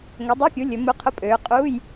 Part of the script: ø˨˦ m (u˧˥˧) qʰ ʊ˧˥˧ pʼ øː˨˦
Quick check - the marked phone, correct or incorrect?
correct